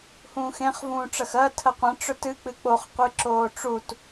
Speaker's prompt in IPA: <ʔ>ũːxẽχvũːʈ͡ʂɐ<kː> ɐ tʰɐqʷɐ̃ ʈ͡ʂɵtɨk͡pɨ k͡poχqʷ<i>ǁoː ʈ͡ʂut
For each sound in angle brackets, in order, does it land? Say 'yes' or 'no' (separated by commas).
no, no, no